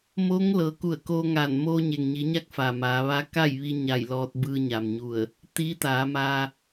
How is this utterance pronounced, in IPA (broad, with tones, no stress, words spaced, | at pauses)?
moː˧˥ŋlɤː˩˧ ku˧˩ə̯koː˧ŋaː˧˩n moː˧ɲe˩ŋɲi˩˧ɲa˧˥k̚ fa˩maː˩˧ʋa˧˥ ka˥˨jʋi˧ɲa˧˩j lɔː˧t̚bɯː˧ɲaː˩mɲu˧˩ə̯ | t̪i˧˥t̪aː˩˧maː˧